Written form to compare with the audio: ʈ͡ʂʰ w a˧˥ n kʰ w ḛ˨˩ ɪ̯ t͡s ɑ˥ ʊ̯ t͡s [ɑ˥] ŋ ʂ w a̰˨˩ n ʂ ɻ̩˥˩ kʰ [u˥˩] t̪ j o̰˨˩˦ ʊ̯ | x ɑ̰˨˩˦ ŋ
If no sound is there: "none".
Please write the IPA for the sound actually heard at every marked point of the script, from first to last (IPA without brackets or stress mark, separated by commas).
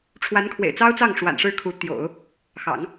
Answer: ɑ˥˩, u˧˥